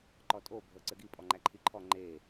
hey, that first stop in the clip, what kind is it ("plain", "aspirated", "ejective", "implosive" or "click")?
click